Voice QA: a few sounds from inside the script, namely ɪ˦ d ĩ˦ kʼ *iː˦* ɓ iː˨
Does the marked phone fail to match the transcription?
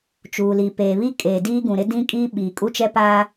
no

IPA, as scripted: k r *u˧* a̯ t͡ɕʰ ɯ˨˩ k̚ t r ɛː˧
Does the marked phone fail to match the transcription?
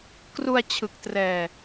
no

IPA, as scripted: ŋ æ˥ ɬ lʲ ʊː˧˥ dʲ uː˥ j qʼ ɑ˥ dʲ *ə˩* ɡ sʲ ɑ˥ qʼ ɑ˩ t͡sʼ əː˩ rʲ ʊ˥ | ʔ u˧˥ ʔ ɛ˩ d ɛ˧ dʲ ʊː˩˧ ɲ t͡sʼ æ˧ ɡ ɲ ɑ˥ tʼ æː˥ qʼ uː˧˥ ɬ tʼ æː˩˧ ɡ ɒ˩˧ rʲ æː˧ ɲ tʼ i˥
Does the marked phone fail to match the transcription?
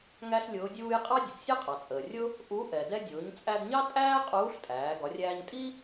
no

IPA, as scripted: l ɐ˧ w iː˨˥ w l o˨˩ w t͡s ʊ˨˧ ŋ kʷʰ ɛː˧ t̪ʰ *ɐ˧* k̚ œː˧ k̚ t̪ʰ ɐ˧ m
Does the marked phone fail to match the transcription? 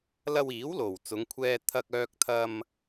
no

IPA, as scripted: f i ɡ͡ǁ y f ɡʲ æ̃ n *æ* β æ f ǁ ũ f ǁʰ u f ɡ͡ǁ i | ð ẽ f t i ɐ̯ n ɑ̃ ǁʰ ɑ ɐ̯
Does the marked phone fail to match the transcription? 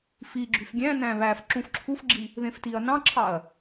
yes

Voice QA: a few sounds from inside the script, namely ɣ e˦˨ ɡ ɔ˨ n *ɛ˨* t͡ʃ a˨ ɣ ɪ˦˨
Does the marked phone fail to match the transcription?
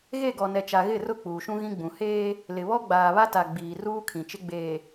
no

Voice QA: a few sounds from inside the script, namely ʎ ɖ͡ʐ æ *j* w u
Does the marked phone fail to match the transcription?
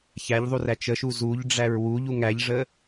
yes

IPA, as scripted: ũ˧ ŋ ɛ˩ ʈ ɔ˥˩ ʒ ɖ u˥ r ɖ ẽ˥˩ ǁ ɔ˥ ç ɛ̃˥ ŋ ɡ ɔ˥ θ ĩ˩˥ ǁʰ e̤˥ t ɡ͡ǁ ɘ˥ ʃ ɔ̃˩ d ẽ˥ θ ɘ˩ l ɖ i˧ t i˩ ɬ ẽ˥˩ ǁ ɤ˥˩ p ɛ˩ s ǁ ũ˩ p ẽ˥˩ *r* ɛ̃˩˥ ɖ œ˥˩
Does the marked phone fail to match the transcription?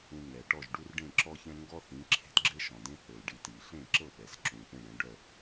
yes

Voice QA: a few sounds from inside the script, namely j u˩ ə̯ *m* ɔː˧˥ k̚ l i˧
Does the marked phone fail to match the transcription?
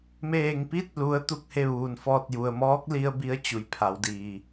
no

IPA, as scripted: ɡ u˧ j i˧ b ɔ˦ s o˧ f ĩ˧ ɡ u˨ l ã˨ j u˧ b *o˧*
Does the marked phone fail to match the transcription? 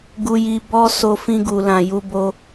no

